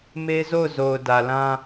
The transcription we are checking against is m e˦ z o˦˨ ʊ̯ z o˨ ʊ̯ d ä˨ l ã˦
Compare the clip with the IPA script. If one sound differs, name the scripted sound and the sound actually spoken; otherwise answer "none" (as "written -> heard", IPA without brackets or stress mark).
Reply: none